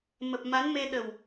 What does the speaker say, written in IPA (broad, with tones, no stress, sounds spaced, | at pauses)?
m ə˨˩ p̚ m a˨˦ n m e˧ ɗ ə˨˩ w